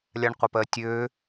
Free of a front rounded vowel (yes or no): no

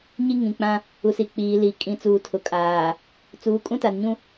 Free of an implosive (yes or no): yes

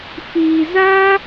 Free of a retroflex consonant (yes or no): yes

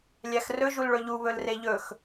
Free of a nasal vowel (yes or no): yes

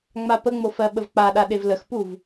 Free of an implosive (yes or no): no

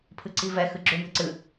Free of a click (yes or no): no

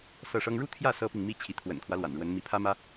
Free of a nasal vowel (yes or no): yes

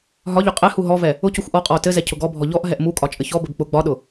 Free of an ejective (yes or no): no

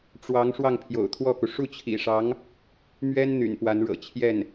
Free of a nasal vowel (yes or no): yes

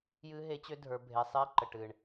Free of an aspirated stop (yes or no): yes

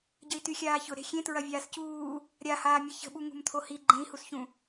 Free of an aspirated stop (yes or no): no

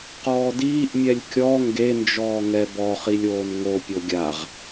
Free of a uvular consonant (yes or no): no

